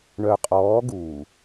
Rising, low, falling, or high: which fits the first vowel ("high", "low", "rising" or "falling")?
low